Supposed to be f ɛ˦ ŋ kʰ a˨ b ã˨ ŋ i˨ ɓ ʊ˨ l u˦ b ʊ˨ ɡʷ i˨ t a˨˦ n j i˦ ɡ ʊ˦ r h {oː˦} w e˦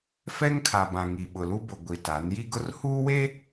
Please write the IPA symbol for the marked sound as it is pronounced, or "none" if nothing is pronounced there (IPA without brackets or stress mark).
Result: uː˦